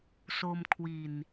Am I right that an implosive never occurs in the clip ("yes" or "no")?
yes